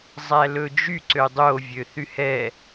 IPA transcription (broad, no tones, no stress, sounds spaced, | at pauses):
zˤ æ l ɵ d͡ʒ y ǀ ø dˤ o vʲ ø θ y h ɛ